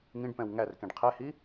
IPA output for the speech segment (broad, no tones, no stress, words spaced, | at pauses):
ŋĩɖpɛ̃w ŋærkẽɖ qʰɛhi